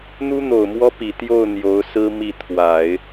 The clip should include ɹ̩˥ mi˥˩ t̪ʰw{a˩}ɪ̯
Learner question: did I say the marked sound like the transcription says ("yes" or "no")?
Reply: no